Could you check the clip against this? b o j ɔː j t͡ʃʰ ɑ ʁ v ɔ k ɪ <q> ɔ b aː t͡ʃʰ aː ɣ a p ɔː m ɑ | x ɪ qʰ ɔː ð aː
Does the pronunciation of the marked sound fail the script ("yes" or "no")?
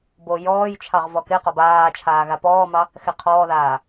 no